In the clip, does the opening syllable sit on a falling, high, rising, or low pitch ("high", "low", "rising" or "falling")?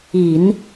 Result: low